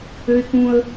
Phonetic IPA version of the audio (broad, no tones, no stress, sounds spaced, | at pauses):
ø ɪ̯ k ũ ə̯